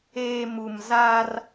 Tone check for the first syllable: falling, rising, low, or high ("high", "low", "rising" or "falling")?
low